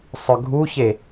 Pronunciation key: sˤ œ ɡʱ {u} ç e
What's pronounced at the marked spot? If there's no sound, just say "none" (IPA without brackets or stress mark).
u